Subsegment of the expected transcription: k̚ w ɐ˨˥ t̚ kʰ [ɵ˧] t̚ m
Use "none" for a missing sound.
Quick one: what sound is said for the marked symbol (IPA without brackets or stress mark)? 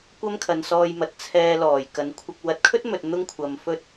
ɵ˥